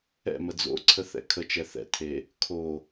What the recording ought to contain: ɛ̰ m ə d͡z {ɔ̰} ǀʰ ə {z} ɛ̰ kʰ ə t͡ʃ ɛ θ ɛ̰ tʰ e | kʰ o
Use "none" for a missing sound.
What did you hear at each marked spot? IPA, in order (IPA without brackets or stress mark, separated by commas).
o̰, θ